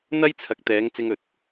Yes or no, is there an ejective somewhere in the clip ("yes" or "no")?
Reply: no